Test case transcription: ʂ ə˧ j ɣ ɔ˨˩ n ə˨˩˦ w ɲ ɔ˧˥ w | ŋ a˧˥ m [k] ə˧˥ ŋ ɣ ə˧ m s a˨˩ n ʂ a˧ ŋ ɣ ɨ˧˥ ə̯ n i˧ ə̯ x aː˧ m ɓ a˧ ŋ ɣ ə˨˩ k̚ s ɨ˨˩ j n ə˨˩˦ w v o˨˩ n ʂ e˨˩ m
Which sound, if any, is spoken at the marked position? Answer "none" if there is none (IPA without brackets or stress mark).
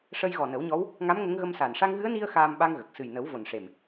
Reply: ŋ